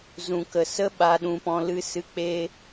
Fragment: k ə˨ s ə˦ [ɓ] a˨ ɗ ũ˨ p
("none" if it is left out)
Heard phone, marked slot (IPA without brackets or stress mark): ɓ